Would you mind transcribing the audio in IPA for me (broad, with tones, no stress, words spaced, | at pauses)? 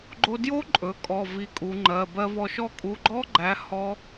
ɡ͡ǃo˧djo˦˥ǃʼɵ˩˧ kʼɔ˩˧˩ vi˧kʼu˩˧ŋ͡ǃɜ˩˧˩ bɜ˧vɔ˧ʃɔ˥˧ kʼu˩˧˩ɡ͡ǃɔ˦˥ɡ͡ǃæ˩˥ hɔ˦˥